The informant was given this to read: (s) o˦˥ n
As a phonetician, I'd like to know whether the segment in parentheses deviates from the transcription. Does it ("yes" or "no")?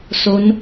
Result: no